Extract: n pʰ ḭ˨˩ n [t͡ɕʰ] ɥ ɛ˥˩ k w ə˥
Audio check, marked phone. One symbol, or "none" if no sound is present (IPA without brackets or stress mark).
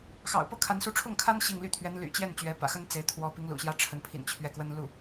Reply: t͡ɕʰ